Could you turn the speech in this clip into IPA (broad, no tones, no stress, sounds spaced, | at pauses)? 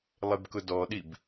lˠ e b k ʊ d ɔ ɗ i b